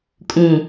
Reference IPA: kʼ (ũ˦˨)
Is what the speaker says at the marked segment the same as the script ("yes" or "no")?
no